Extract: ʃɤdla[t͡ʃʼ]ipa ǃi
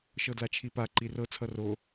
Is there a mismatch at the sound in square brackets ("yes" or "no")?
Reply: yes